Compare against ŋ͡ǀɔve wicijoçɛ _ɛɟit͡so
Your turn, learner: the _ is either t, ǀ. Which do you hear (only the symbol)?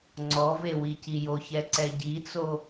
ǀ